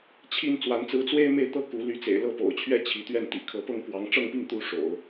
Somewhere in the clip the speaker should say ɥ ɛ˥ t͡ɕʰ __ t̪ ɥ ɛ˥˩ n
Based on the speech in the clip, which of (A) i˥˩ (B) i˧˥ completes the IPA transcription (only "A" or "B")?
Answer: B